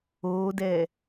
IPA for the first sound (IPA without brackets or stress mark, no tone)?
oː